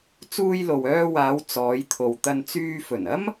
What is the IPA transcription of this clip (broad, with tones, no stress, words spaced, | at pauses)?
t͡suː˧jlo˨wœː˧waː˨˧w t͡sɔː˨˧jt̪ʰo˨wt̪ɐ˧nt͡syː˧ fɵ˨˩nɐ˥m